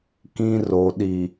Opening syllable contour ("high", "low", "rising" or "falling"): low